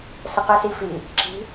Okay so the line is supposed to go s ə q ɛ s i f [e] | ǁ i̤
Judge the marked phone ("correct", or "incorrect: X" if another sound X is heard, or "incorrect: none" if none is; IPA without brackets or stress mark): incorrect: i